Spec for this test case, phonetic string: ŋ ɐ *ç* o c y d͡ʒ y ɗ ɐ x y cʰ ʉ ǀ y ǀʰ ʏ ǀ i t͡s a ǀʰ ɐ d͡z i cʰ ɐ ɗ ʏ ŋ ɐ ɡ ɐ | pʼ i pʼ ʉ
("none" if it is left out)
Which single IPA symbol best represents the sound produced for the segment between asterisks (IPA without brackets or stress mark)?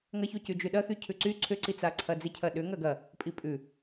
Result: ç